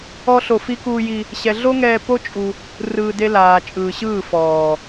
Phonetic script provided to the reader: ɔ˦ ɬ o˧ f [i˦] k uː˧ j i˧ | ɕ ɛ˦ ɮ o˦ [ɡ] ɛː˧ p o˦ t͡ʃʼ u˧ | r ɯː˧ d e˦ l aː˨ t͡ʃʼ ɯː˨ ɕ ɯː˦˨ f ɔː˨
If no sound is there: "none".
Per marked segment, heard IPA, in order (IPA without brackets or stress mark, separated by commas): i˦, ŋ